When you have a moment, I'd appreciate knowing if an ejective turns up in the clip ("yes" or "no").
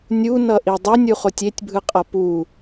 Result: yes